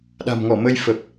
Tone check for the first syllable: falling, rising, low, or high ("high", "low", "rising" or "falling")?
low